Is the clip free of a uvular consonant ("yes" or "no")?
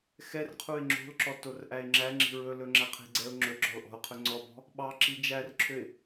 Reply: no